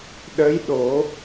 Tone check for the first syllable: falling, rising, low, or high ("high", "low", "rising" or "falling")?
rising